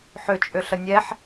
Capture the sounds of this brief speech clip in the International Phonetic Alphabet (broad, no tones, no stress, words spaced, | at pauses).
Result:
ħʏt͡ʃʼʏɬə nʲɛħ